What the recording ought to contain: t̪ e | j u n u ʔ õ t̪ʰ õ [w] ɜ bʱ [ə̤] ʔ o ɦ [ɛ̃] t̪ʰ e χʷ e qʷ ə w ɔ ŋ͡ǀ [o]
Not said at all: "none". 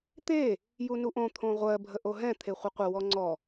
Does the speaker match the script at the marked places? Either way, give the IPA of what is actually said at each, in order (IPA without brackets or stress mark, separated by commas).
ʁʷ, ə, ɛ̃, ɔ